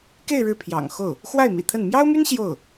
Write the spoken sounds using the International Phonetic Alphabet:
k e˥˧ ɪ̯ ɻ ɻ̩˥˩ pʰ j ɑ̰˨˩ ŋ x o˥˩ ʊ̯ | x w a˥˩ ɪ̯ m ḭ˨˩ t̪ʰ ə˥˩ n m j ɑ˥ ʊ̯ m y˥ n ɕ j o˥˩ ʊ̯

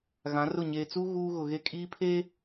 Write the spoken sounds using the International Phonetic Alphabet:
ɣ ã˨˦ r ʊ˦˨ ɲ eː˨ t͡s uː˦ ɣ uː˦ ɣ ʊ˨ ɣ e˦˨ kʼ iː˦ pʰ eː˦

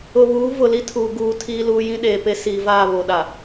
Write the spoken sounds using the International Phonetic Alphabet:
ʊ˨ β uː˨˦ v ʊ˨ l i˦ tʰ uː˨ ɡ uː˨ tʰ iː˦ l uː˦ j ĩ˦ ɗ eː˨ p e˦ s iː˨ v aː˦˨ β o˨ ɗ a˨

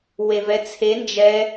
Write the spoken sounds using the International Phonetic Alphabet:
w e v ɛ t͡sʰ e n d͡ʒ ɛ

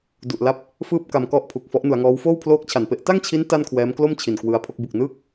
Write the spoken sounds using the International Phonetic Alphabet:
d u˨˩ ʔ l a˦˥ p̚ | f ɯː˥˩ p̚ k a˧ m k ɔ˥˩ ʔ pʰ u˨˩ k̚ f ɔ˦˥ ʔ n u˩˦ a̯ ŋ ɔː˦˥ w f oː˥˩ w pʰ l oː˦˥ k̚ t͡ɕʰ a˨˩ n p e˦˥ ʔ t a˥˩ ŋ t͡ɕʰ i˦˥ n t a˥˩ n kʰ w ɛː˦˥ m k l o˥˩ m t͡ɕʰ i˨˩ n k w ɯ˧ a̯ pʰ o˥˩ k̚ b u˨˩ k̚ n ɯː˥˩ k̚

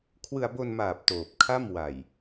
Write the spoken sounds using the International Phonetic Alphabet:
kʰ w ɯ˧ a̯ b o˧ n m aː˨˩ p̚ t oː˨˩ p̚ kʰ a˥˩ m w a˨˩ j

